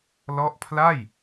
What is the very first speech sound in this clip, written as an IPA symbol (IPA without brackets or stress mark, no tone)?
l